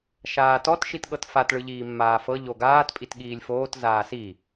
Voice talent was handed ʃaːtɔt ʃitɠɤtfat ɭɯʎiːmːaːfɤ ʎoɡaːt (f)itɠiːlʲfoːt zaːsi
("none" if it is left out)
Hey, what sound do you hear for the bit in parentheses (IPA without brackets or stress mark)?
pʼ